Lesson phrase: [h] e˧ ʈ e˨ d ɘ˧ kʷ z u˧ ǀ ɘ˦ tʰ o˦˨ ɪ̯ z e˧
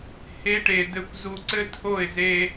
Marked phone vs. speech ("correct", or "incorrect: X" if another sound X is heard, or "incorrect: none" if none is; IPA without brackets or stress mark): correct